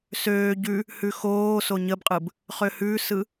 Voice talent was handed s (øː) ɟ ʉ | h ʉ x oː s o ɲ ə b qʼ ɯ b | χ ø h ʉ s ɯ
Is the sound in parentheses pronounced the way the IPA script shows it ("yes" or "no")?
yes